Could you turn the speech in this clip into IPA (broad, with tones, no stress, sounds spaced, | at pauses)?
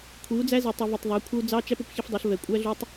kʷʰ i˨˦ u̯ d͡z æ˦ z i˨ tˤ ʌ˨ v ʌ˨ tˤ ðˤ æ˨˦ kʷʰ ʌ˦ u̯ d͡z ɑ˦ t͡ʃ æ˦ p ʊ˨ p ç ə˦ f dˤ ʌ˨˦ ɬ v ɛ˨ kʷʼ æ˦ ɮ u˦ tˤ